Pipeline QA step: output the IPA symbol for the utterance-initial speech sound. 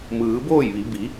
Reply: m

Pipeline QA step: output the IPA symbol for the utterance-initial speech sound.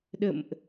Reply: ɗ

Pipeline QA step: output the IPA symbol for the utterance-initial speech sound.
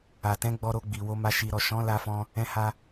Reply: a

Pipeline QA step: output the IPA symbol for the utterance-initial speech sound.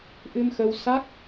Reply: ʔ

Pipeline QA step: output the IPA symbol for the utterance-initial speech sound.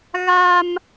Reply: ɣ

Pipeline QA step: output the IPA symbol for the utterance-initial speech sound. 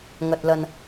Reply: ŋ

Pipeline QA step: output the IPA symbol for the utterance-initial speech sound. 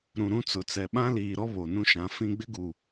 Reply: ɾ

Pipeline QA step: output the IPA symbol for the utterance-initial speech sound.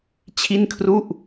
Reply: t͡ɕʰ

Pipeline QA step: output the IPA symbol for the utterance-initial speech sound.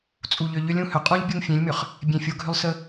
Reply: t͡sʼ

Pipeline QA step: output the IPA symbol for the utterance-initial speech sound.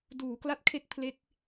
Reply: d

